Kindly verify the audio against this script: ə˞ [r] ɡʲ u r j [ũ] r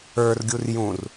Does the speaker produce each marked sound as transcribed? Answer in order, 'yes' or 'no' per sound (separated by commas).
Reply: yes, yes